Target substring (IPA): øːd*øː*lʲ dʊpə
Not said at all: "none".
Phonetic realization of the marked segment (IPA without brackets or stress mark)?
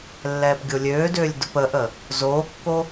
øː